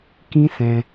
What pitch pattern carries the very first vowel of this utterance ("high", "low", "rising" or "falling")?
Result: high